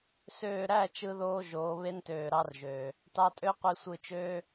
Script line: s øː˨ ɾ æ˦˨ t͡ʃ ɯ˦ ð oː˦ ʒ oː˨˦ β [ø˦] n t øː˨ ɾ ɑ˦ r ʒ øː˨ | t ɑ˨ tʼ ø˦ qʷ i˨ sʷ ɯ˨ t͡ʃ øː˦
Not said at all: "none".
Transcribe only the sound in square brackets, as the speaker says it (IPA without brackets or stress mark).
e˦